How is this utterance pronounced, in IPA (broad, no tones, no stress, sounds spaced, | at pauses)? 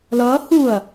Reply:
l ʌː h u ɐ̯